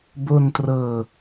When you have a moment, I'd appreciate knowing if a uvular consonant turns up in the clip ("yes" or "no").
no